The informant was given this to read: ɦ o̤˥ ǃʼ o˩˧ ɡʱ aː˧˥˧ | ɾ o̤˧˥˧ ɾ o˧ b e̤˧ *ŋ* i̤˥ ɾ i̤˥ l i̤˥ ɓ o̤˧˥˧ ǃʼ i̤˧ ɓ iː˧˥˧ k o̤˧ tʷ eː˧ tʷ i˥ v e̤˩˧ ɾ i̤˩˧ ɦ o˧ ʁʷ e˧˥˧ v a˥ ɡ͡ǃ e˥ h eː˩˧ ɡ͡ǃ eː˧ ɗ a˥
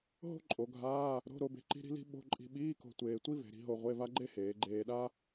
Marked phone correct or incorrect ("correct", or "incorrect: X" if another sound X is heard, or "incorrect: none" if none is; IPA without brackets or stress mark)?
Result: incorrect: ǃ